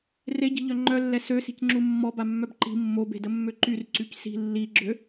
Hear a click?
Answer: yes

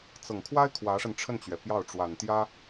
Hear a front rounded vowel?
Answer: no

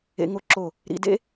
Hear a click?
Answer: yes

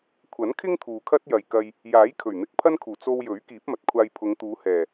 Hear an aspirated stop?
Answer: yes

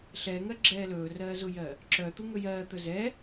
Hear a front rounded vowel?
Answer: yes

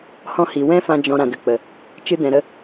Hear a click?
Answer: no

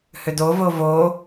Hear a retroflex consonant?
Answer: no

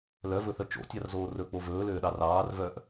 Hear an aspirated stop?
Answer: no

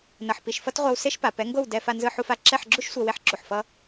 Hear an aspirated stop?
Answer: no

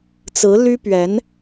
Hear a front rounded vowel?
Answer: yes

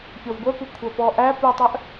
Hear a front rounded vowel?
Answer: yes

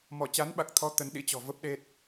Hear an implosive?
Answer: yes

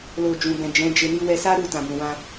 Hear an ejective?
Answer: no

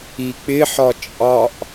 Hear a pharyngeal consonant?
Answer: yes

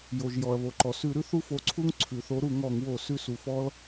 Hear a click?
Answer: yes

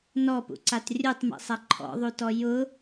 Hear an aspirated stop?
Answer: yes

